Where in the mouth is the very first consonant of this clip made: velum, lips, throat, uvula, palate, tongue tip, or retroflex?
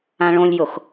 retroflex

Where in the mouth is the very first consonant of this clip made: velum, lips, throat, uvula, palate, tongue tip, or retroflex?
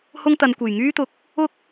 throat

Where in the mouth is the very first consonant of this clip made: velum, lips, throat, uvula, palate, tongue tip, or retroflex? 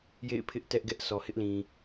palate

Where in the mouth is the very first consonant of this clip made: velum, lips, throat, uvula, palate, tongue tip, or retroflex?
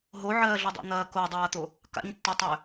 throat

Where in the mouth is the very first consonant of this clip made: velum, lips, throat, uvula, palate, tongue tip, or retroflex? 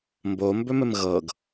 lips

